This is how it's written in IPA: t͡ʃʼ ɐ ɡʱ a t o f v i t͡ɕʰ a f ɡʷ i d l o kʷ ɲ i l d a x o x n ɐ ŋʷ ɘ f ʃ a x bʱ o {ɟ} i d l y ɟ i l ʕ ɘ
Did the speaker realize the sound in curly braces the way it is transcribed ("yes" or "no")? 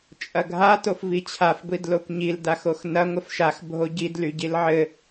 yes